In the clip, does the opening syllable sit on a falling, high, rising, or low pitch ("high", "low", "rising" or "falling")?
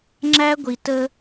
high